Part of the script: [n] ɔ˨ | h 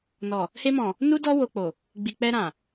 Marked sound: correct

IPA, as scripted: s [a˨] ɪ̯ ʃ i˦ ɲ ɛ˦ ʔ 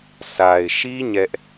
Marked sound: correct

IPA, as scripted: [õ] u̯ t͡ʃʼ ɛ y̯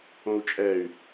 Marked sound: correct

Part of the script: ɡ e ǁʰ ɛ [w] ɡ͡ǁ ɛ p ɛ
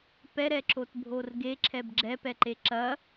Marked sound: incorrect: b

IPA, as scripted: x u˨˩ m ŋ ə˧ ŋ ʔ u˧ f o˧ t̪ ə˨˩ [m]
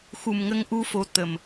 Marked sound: correct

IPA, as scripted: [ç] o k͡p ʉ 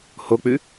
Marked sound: incorrect: h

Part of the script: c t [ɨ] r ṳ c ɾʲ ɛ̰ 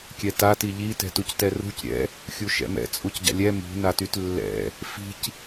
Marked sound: incorrect: ɛ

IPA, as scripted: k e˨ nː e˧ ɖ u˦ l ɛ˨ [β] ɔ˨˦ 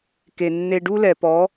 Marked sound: incorrect: p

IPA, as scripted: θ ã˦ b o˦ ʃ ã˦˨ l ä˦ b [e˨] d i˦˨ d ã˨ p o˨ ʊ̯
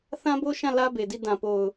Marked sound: correct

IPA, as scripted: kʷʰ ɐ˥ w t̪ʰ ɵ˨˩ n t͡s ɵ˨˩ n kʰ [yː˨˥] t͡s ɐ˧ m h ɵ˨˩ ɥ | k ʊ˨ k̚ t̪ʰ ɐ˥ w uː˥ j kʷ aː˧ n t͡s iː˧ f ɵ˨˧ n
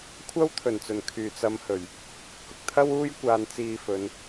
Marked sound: incorrect: yː˨˩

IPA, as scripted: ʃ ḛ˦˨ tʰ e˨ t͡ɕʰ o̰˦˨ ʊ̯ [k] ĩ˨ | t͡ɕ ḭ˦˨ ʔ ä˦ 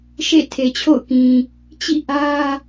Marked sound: correct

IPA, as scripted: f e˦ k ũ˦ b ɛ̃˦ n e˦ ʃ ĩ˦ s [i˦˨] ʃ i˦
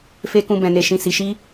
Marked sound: incorrect: i˧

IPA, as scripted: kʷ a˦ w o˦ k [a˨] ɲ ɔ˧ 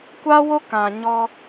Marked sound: incorrect: ã˨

